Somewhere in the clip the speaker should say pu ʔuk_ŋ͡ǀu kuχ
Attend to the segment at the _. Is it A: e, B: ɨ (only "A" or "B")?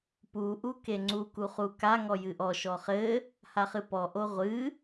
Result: A